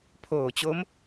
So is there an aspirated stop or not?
yes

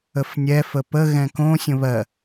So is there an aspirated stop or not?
no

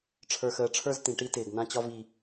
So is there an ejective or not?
no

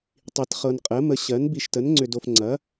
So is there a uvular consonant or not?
yes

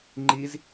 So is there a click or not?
yes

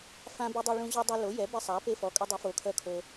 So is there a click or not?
no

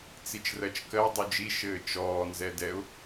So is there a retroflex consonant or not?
no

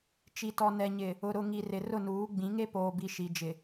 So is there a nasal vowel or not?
yes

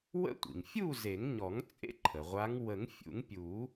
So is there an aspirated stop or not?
yes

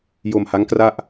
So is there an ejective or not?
no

